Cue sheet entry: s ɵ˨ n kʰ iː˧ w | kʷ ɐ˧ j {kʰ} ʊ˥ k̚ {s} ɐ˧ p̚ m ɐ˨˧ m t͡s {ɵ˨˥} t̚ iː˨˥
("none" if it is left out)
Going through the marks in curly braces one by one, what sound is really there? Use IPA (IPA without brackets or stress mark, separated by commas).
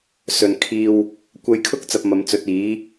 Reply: kʰ, t͡s, ɵ˨˥